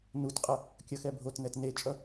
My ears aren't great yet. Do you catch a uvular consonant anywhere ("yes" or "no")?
yes